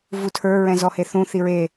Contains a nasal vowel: yes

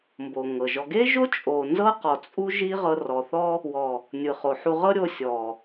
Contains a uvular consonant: yes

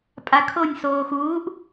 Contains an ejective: yes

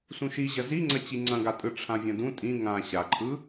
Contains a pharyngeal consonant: no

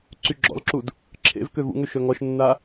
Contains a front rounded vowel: yes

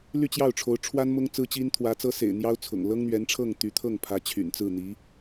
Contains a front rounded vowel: yes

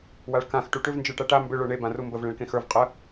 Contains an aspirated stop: no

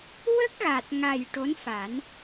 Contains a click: no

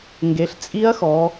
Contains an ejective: yes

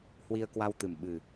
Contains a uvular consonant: no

